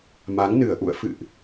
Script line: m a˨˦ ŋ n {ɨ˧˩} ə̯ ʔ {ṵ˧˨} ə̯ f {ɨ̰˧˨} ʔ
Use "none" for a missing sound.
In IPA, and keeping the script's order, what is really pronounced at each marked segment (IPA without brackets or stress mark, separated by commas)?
ɨ˧˩, ṵ˧˨, ɨ̰˧˨